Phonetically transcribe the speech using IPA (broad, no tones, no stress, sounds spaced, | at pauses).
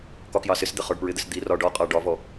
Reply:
k ɒ k j ɑ s ɪ s d̪ ɪ χ ɒ ɖ p ɹ ɪ d̪ ɪ s d̪ i r ɒ ɖ ɒ qʼ ɑ ɖ ɒ v ɔ